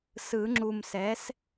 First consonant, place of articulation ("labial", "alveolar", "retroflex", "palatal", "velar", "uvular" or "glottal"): alveolar